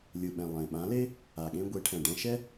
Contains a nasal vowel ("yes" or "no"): yes